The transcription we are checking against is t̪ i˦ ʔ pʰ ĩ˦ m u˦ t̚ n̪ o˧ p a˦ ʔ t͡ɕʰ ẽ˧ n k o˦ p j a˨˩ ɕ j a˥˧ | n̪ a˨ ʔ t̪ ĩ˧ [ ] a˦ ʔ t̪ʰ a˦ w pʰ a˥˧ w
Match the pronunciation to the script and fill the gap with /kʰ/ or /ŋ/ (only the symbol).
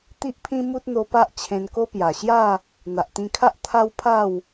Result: kʰ